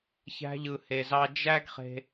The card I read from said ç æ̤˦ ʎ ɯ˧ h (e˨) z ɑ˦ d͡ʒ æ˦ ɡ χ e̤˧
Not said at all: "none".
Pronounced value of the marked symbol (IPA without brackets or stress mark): e˧